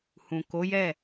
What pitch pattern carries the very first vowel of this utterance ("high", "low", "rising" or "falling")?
low